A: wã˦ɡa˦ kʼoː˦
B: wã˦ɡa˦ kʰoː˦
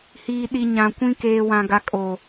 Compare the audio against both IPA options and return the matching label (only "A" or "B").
A